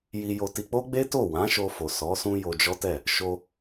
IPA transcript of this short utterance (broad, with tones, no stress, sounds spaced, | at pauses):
j i˧ j o˧ t i˧ k͡p o˦ ɡ͡b e˦ t o˦˨ w ã˨˦ ʃ o˧ f o˨ s ɔ˨˦ s ũ˦ j o˧ d͡ʒ ɔ˦ t ɛ˦˨ | ʃ o˧